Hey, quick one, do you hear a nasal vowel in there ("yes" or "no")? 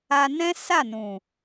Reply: yes